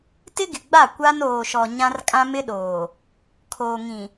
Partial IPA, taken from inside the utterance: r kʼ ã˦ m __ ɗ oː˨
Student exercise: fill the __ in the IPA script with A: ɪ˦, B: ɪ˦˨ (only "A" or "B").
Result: A